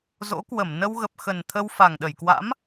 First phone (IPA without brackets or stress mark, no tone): z